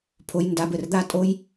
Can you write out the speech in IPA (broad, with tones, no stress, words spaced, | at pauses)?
pʰo˧jnda˧bɘ˨rd̪a˦ tʼo˦j